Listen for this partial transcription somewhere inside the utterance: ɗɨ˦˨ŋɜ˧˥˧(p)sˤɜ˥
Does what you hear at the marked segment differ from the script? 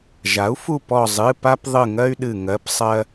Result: no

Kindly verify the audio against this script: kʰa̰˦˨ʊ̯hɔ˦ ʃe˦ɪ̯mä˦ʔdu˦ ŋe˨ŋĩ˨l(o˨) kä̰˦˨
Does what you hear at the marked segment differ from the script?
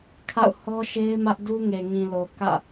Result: no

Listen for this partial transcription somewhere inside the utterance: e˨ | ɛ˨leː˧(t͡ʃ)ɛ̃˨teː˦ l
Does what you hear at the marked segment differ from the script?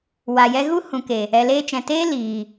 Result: no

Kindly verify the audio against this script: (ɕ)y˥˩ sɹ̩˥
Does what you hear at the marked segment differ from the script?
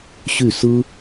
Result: no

